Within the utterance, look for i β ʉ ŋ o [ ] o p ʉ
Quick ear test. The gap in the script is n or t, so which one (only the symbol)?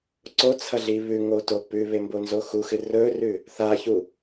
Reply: t